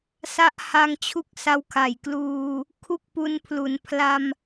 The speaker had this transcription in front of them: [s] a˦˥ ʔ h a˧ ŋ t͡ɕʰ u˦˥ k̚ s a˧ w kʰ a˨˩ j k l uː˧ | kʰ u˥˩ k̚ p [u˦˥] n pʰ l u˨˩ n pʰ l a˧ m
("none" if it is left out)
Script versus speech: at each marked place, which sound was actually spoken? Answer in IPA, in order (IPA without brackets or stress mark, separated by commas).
s, u˦˥